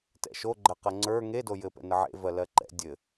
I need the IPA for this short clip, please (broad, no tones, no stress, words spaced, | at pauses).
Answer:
tɛ̰ʃoɡ͡ǃɜqɜ ŋ͡ǀə˞ ŋedo jɘpɛ̰ nəʕḛvɜ lɜǃɛ̰ dʲɘ